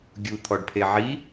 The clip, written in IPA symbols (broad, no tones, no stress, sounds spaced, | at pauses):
ɡʲ u t̪ʰ ɔ ɖ pʰ e ʕ i